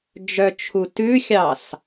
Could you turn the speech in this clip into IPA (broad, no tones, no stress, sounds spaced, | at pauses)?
d͡ʒ œ t͡ʃʰ u t ʉ xʲ ɑ s